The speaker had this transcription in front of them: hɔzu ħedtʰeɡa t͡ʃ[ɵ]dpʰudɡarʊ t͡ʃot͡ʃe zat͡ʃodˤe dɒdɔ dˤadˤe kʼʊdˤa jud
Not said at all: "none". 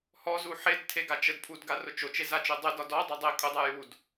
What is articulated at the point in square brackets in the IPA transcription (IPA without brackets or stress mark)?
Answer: ə